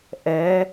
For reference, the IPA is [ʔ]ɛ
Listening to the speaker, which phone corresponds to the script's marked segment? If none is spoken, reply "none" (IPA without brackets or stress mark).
ʔ